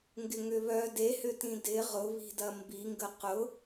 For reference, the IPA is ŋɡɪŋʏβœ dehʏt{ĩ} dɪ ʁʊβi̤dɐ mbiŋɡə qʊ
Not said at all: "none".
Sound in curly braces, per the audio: ĩ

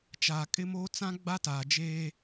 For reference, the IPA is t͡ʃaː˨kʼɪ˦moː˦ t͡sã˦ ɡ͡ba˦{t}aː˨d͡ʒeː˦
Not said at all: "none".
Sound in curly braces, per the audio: t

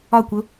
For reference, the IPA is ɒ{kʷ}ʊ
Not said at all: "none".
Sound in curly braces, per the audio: kʷ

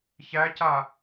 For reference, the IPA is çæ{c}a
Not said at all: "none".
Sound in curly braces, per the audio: c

